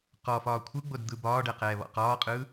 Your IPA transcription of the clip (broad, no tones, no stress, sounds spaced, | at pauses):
q ɔ f ɒː kʷʰ ɯ ɡ͡b o d d̪ ɯ b ɒː ɖ ɛ q ɛː β ɔ̰ q ɒː qʼ ɯ